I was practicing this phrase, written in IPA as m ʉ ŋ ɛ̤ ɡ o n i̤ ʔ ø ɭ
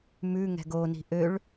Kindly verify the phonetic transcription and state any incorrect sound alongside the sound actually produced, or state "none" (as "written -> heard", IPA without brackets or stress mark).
none